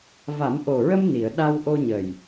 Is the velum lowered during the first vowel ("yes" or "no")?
no